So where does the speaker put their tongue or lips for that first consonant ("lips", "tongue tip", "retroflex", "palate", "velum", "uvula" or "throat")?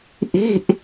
throat